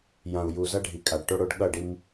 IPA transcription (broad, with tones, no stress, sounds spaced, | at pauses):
j ã˨ u̯ j u˨ z ʌ˦ ɖʱ i˨ kʼ a˨ ɖ ʈ o˦ ɽ o˦ ɖ ɠ ʌ˦˨ ɖ i˦ m